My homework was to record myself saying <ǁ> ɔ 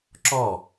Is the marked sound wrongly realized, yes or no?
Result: no